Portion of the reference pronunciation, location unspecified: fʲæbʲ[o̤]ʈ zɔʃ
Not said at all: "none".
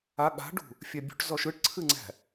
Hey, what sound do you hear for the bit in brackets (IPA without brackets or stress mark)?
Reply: ṳ